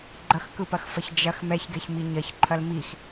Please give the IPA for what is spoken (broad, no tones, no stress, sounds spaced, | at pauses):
ɡ͡ǃ ɐ x k ɯ p ɐ x f ɐ ç d͡ʒ ɐ x m ɛ ç ɡ ɛ ç m i ɲ ɐ ç ǃʰ ɐ l m i x